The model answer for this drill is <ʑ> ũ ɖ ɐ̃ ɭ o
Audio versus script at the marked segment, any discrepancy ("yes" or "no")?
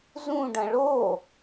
yes